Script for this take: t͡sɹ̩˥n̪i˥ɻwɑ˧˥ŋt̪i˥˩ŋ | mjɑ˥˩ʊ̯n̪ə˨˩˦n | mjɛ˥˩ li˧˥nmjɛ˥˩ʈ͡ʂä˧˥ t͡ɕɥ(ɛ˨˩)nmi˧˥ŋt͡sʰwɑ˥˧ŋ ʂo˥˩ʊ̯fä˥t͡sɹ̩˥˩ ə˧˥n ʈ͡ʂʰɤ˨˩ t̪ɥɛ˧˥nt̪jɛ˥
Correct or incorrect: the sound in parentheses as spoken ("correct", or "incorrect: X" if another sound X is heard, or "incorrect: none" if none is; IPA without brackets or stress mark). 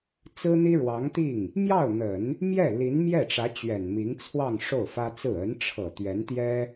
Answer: correct